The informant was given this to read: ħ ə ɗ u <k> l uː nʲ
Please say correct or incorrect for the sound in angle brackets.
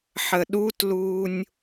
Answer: incorrect